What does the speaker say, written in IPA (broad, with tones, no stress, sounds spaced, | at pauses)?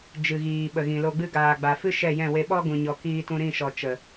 d͡ʒ ɨ˨ ɣ iː˨ ɓ ə˨ ɣ ĩ˨ l o˧ ɡ͡b ɨ˦ ɡ aː˨ ɡ͡b a˨ f ɨ˦ ʃ ɛ˦˨ j ɛ̃˦˨ w e˧ ɓ ɔ˦ ɡ ũ˨ ɲ ɔ˨ k iː˧ t ũ˧ ɾ ĩ˦˨ ʃ ɔ˨ t͡ʃ ə˨